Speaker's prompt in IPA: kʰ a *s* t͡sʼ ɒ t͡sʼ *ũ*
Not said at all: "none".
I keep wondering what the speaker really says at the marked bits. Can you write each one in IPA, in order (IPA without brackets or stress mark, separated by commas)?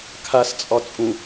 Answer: s, ũ